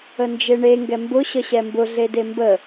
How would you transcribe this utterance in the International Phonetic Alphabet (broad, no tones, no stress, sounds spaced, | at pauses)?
ə n d͡ʒ e ɳ e ŋ ɡ ɛ m b ʊ ɕ ə ɕ ɛ m b ʊ ɮ e d e m b ə